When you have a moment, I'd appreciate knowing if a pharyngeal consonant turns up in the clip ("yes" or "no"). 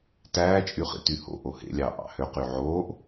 yes